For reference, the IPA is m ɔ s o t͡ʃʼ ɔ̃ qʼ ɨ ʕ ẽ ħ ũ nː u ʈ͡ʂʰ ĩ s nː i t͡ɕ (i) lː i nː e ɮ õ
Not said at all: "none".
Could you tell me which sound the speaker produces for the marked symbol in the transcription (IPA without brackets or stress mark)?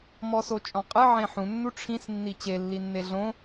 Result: e